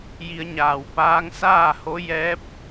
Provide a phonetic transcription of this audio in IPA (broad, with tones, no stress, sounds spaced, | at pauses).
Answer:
j i˧ ə̯ ɲ aː˧˩ w p aː˧˥ ŋ s aː˥˨ h o˧˥ j ɛː˧˥ p̚